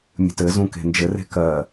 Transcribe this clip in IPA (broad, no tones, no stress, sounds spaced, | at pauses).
mʲ ə̤ t ɘ z ũ k e̤ n d͡ʒ ɘ r e̤ k ɜ